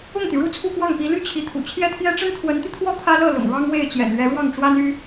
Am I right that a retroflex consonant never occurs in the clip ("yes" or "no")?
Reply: no